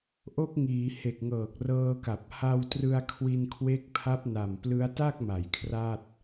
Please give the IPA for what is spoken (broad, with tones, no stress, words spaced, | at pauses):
ʔo˦˥k̚ŋiː˩˦ he˨˩k̚ŋɤː˨˩k̚ rɤː˧ka˨˩p̚ ha˧wtrɯ˧a̯ kʰwi˧nkʰwe˦˥k̚ pʰa˦˥p̚na˨˩mplɯ˦˥a̯ ta˥˩k̚ma˩˦j kʰra˥˩t̚